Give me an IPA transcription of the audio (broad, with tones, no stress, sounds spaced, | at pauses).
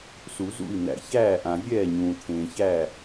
s u˨˩˦ z ṵ˥˩ i̯ n̪ æ̰˨ ç æː˥˩ ʔ ã˨ vʲ ɛː˥˩ ɲ ũː˨ t̪ʰ ẽː˨ ç æ˥˩